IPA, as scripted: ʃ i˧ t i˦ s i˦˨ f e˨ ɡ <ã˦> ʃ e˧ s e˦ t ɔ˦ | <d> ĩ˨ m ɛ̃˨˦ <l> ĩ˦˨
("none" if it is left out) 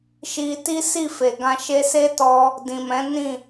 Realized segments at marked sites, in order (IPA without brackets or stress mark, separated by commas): ã˧, d, n